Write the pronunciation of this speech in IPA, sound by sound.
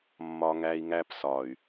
mː ɒ˦ ŋ æ˦ i̯ ŋ æ˦ p s ɒ˨ y̯

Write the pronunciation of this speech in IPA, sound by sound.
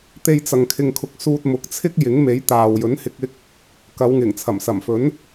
t̪ e˥ j t͡s ɐ˧ ŋ kʰ ɪ˧ ŋ kʰ ʊ˧ k̚ s uː˧ t̚ m ʊ˨ k̚ t͡sʰ ɪ˥ k̚ j ɪ˨˥ ŋ m e˨˥ j t̪ aː˨ w j ɵ˨˥ n h ɪ˨˥ k̚ ɪ˨˥ k̚ | k ɐ˨˧ w ŋ ɪ˨˩ ŋ t͡sʰ ɐ˨˩ m s ɐ˨˩ m f ɵ˨˥ n

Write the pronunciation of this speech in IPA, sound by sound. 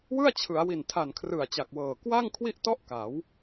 w ɯ˥˩ a̯ t͡ɕʰ ɯ˩˦ a̯ w i˨˩ n tʰ a˨˩ n kʰ r ɯ˨˩ a̯ t͡ɕ a˨˩ k̚ w ɤː˨˩ k w a˥˩ ŋ kʰ w i˥˩ ʔ t ɔ˦˥ ʔ k a˩˦ w

